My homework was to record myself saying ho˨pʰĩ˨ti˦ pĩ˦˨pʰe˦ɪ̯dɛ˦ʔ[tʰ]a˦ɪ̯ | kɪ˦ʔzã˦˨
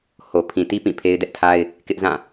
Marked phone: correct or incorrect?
correct